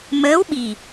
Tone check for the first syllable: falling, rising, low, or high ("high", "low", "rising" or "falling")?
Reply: rising